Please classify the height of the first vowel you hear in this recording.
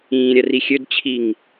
high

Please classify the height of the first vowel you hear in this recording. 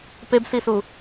mid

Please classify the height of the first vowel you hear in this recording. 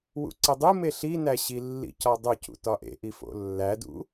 high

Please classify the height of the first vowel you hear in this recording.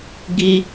high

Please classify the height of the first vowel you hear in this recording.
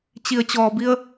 high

